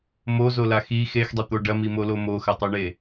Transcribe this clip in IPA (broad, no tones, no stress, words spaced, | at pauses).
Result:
mozola xi xexdˤet̪o ɖɐmimolo moxɐtˤoɳe